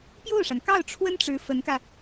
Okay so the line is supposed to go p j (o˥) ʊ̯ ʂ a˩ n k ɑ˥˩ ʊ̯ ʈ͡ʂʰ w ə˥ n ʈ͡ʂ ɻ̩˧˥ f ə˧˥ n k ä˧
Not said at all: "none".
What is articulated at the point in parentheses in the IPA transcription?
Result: o˥˩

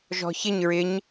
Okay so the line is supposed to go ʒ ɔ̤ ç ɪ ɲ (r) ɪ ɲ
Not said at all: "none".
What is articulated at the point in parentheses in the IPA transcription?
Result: ɹ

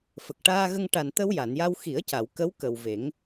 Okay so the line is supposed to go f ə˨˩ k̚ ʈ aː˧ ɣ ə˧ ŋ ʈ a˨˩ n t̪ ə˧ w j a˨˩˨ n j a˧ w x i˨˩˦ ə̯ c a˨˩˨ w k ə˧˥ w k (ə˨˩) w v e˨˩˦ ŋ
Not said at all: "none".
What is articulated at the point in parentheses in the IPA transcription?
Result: ə˨˩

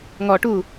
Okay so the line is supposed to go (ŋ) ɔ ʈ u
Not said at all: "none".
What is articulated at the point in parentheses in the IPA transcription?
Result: ŋ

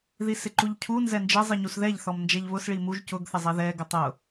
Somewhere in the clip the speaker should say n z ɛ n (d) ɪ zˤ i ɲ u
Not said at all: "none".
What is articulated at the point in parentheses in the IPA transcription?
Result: d͡ʒ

